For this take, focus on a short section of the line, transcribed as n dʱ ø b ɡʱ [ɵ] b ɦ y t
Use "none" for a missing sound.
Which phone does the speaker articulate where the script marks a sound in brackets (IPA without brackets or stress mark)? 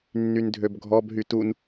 ɔ